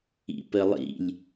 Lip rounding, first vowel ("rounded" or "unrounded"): unrounded